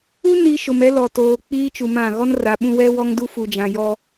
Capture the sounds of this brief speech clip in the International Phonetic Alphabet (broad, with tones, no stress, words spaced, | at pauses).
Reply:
u˦ ni˨ ʃʊ˨mɛ˦lɔ˨toː˨ k͡piː˦t͡ʃu˨mã˦˨ ɣɔ˦nra˨ɓũ˦ wɛ˦wɔ˦ŋdu˦ fu˨d͡ʒã˨jɔ˦